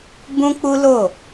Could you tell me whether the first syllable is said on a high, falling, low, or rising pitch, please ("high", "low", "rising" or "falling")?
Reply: high